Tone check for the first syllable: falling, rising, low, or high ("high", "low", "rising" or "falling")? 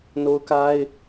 high